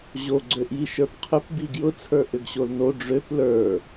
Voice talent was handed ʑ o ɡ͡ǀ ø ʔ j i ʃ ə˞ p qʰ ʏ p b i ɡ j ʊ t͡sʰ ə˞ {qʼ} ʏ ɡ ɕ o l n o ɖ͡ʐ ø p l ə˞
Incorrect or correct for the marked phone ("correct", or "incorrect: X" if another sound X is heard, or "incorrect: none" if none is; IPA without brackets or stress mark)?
incorrect: ʔ